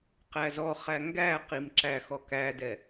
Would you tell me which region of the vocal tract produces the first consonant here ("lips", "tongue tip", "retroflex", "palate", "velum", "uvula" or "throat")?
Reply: uvula